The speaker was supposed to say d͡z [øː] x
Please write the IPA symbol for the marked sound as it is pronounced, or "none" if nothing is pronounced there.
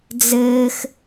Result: ɘː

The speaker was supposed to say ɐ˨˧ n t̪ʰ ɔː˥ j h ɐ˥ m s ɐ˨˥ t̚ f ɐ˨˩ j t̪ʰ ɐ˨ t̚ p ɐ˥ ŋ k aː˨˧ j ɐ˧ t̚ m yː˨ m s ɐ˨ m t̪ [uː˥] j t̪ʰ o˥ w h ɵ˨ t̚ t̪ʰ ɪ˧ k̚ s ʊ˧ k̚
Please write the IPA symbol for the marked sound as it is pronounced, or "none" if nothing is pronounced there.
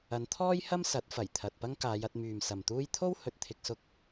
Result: uː˥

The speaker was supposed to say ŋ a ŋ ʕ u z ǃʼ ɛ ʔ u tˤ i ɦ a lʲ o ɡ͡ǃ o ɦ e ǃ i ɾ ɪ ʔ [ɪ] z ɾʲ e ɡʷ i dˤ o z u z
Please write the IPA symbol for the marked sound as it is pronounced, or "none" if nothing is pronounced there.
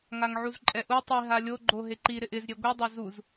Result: ɪ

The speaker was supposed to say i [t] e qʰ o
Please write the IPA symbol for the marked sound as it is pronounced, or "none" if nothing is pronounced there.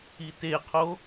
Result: t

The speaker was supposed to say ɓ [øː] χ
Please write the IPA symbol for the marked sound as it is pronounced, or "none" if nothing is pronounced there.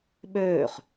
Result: øː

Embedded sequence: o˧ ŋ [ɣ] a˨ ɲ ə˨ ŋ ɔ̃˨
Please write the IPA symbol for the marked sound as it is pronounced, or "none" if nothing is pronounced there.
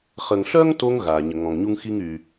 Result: ɣ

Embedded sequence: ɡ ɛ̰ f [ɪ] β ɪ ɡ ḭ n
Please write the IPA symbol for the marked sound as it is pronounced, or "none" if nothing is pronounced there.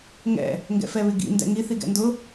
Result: ɛ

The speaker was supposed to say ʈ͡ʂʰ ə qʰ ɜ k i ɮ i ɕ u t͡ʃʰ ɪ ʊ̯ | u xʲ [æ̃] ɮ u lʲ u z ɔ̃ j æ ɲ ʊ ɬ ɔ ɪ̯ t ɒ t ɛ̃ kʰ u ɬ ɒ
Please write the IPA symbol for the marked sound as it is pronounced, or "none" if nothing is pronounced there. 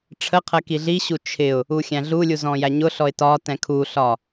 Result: æ̃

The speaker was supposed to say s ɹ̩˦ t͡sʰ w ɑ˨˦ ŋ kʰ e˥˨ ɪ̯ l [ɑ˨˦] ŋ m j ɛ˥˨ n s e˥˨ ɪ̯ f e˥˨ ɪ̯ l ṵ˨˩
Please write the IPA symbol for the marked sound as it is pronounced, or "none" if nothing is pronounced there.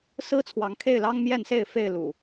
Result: ɑ˦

